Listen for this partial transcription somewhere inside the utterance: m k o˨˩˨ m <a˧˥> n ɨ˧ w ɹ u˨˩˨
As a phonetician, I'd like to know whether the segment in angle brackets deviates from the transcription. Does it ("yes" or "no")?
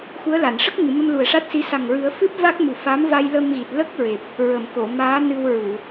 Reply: yes